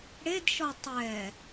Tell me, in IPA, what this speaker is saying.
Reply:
ɽ e d ʃ ɔ tˤ ɛ

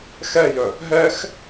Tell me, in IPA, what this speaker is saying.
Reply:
x ɛ j œ | ɦ ɛ x

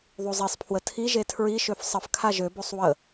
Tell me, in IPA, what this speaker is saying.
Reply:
ðˤ u zˤ i sˤ pʰ w ə tʰ i ʒ e tʰ ɹ i ʃ ø f sˤ ə f kʰ a ʒ ø b o sˤ w ə

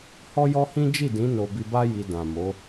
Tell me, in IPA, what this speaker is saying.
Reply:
h ɔ˦ j ɔ˦ h ĩ˦ d͡ʒ i˦˨ d ĩ˨˦ n o˧ b i˧ b a˦ j i˧ d ã˨ m o˨˦

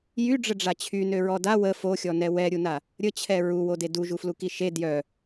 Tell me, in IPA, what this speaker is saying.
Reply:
j y ɖ͡ʐ ə ɖ͡ʐ a t͡ɕʰ y n ø ɹ ɔ d a w ə f o xʲ ɔ n ɛ w ɛ ɾʲ u n a | ɾʲ ə t͡ɕʰ ɛ ɹ u w o d e d u ʒ u f l u k i ʃ e d j œ

